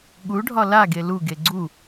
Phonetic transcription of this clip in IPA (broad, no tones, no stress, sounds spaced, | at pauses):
ɠ u ɖʱ ɒ l a ɡ e l u ɡ e ɡ͡ǀ u